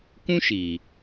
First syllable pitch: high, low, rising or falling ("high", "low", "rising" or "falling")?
high